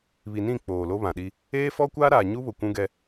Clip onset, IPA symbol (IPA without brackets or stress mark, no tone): β